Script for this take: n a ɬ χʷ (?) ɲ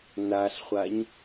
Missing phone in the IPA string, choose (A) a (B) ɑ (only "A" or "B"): A